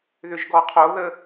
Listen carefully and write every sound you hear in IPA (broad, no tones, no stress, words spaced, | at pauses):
ðʏʒɡɔqʰoðə